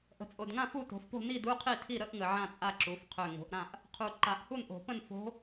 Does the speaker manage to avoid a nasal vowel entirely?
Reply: no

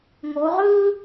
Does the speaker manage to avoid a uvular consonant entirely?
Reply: no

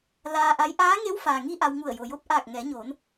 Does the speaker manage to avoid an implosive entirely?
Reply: yes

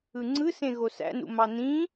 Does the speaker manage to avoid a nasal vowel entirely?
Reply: no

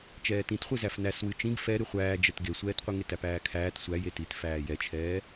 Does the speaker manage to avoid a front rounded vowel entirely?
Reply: yes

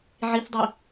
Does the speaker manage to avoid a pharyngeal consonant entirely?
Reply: no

